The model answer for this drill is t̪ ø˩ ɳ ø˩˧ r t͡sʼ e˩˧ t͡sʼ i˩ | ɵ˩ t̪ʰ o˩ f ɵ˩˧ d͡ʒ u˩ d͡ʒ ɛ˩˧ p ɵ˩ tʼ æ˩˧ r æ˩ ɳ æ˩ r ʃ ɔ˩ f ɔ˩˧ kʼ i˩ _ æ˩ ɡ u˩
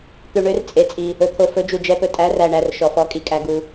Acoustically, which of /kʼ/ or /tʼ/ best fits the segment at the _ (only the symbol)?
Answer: kʼ